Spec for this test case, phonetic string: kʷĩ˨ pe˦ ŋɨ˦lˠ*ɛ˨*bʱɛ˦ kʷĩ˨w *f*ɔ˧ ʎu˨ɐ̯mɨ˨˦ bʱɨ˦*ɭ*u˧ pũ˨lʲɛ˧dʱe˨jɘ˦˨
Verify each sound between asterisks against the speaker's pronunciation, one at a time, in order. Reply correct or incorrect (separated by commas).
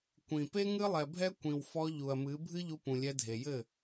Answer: correct, correct, incorrect